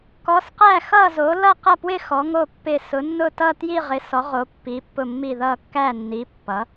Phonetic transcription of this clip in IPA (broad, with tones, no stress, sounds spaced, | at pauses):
k ɔ˨˦ s q æ˦˨ x ʌ˦˨ z o˨˦ l ʌ˦˨ q ʌ˦˨ p w ɪ˦˨ x ɔ˨˦ ŋ o˦˨ pː ɪ˦˨ s ʊ˨˦ nː ʊ˦˨ t ʌ˦˨ t j i˦˨ ʁ ɪ˨˦ s ɔ˨˦ ʁ o˨˦ pː i˨˦ pː ʊ˦˨ mː i˦˨ ð ʌ˦˨ kː æ˦˨ nː i˨˦ pː ʌ˨˦